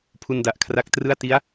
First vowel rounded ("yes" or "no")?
yes